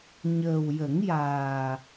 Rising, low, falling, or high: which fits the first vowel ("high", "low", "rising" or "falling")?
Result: low